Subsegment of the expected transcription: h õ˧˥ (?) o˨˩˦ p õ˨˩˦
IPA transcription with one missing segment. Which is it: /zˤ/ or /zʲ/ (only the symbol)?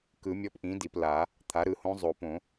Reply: zˤ